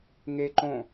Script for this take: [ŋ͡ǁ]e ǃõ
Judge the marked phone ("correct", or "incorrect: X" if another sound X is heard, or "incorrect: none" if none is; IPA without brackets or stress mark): incorrect: ŋ